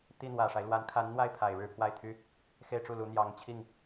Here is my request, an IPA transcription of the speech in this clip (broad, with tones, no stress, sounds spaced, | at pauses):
t̪ i˥˩ n̪ w ä˨˩ ʂ a˦ ɪ̯ l w a˧˥ n kʰ a˧˥ n n̪ w a˥˩ ɪ̯ pʰ a˨˩ ɪ̯ ɻ ɻ̩˥˧ pʰ w a˥˩ ɪ̯ t̪ʰ y˥ | x e˥˧ ɪ̯ ʈ͡ʂ u˥˩ l u˧˥ n̪ j ɑ˧˥ ŋ t͡ɕʰ i˥˩ ŋ